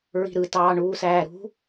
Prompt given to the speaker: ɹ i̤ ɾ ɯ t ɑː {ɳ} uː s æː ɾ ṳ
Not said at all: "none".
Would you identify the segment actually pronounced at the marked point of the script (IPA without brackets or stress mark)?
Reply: ɳ